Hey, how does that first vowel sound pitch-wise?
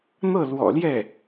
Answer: falling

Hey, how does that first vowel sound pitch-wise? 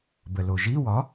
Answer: low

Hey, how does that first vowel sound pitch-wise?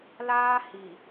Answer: high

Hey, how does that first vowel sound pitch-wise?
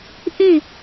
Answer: falling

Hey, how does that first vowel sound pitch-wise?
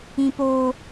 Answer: high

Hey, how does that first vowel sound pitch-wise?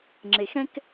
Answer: low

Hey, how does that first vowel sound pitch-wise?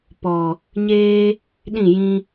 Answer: low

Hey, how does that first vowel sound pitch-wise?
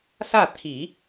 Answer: falling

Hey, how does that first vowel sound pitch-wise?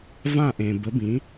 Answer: falling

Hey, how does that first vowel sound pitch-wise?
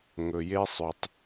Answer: low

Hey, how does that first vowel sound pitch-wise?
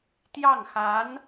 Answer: falling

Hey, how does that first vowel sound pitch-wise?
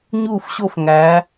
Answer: falling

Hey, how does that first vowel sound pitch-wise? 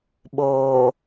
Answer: low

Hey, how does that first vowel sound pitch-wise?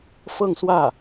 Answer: falling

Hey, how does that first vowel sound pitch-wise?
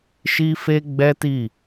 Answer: high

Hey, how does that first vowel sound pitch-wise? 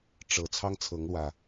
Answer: low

